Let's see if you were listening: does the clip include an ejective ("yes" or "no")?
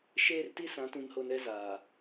no